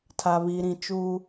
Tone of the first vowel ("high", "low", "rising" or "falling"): low